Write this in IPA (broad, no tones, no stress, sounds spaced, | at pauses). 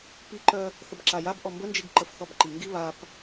p i ǃ œ | θ ə b ǁ a j a b ʔ ɔ m b ə n d͡ʒ i ɡ ǃ ə f θ ɔ b ǃ i ŋ ɡ i β a p